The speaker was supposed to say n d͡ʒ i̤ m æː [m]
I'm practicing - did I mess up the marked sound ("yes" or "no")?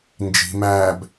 yes